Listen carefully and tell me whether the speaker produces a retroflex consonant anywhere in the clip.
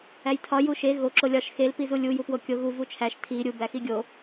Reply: no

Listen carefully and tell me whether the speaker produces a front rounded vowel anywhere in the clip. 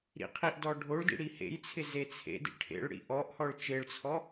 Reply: no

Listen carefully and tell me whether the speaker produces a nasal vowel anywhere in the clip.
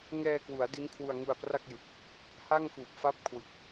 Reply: no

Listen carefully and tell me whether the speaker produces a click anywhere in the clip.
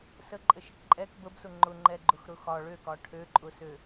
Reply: yes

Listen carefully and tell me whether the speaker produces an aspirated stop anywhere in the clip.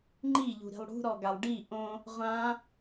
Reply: no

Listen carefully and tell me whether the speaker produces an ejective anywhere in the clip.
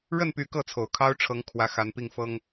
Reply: no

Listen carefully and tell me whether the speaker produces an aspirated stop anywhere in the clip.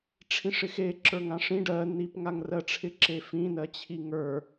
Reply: yes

